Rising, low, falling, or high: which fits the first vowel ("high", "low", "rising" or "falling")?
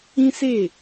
high